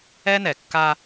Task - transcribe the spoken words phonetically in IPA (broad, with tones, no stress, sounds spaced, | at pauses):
ɛ˦ n ɛ˨ kː a˦